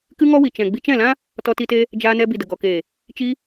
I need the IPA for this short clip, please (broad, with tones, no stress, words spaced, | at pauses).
kɨ˦ŋɔ˦wi˨ t͡ʃɛ̃˨ ɡ͡bi˧t͡ʃɛ̃˦˨lã˦ | tɔ˧ti˧te˧ | d͡ʒaː˧nɛ˧ bi˨də˨ɡɔ˨keː˨ | t͡ʃi˧